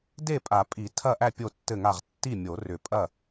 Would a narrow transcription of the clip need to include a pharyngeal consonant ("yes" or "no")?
no